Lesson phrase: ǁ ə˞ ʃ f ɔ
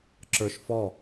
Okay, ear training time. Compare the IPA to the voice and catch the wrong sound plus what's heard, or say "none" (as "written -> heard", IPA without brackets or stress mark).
none